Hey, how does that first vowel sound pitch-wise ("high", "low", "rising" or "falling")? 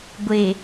low